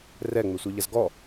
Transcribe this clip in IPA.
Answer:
r ɛ ŋ͡m e sʷ e ʎ ɐ z ɡ ɔ

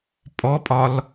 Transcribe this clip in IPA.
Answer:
pʼ ɔ pʼ ɒ l

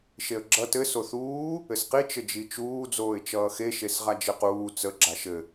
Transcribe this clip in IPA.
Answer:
ʃ e ə̯ ɡ͡ǁ ʌ t ɘ s o θ uː | ɘ s q i t͡ʃ ɘ d͡ʒ i t͡ʃ uː d͡z oː ɪ̯ t͡ʃ ʌː x e ʃ e s ʁ a d͡ʒ ɘ q uː t͡s ə ɡ͡ǁ a ʃ ɘ

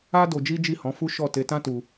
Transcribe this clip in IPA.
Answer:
a˦ d o˧ d͡ʒ i˦ d͡ʒ i˦˨ h ɔ̃˨˦ f u˦ ʃ ɔ˦˨ t e˧ t ã˦ t u˧

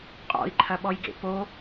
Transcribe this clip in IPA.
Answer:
qʼ ɔ̰ i̯ ǃʰ ɐ ɓ ɔ j ɡ ḛ p o

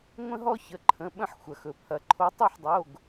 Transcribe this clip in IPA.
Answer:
ŋʷ ə̃˦ ɦ ɔ˦ ç ə˩˧˩ ǃʰ ə̃˩˧˩ ɓ ə̃˥˩ ħ xʷ ɐ˩ x ɵ˩ pʰ ɐ˩ ǃʰ o˨˦ tˤ ɯ˥˩ ħ dˤ o˩˧˩ ɡ

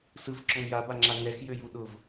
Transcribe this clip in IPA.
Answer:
s ɯ v ǁ ɔ ŋ j a b a ŋ͡ǁ a ŋ ɛ x j ø j u ɗ ʊ v

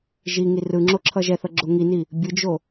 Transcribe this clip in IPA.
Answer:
ʒ i ŋ i r ɯ ŋ͡ǁ o ǁʰ ʌ ʒ ɛ θ ʌ ɡ͡ǁ o ŋ i n i | bʲ ɯ d͡ʒ o

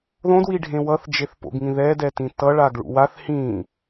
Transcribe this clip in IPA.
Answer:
ð õ d w i ɖʱ ẽ w ʌ θ d͡ʒ e θ p o̰ ɡ ŋ ĩ ð ɛ d ɛ t ĩ t ʌ ɭ a ɡ ɭ ṵ w a θ h ĩ

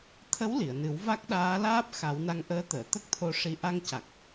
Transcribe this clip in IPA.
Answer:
t̪ʰ ə˧˥ w l i˨˩˨ ə̯ n ɨ˨˩˦ w v a˦˥ k̚ ɗ aː˧˥ l aː˦˥ p̚ x a˨˩˦ w n a˧ ŋ ʔ əː˧˥ t̪ əː˨˩˨ t̪ ə˦˥ k̚ t̪ʰ o˧ ʂ i˧ ʔ a˧ ŋ c a˨˩ k̚

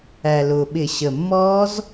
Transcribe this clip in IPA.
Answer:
æ˨˩ l ʊː˨˩ ɓ ɪ˧˩˧ ɕ ə˨˩ mː ɔː˦˥ z

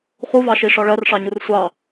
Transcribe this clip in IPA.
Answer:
χ u v ɑ ʃ i ʂ ɒ ɭ ɜ r ʂ ɑ ɲ u r sʷ ɑ

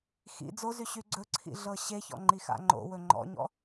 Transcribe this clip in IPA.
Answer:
x ḭ d͡z o z y ɕ y ɡ͡ǀ ɵ ǀʰ ḭ ɮ ɤ ɕ e ç ɔ̰ ŋ͡ǃ i x a̰ ŋ͡ǃ o̰ w ɵ ŋ͡ǃ ɔ̰ ɲ ɔ̰

